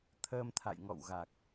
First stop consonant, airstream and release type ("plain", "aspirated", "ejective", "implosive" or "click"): aspirated